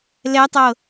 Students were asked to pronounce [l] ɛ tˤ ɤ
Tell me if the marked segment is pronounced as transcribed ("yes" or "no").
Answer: yes